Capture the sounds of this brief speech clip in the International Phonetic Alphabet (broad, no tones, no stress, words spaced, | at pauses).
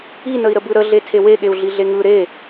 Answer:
inəi̯ɾəbɯ ɾəɮe tʰeweɠeu̯ ɮiɮeŋɯ ɾe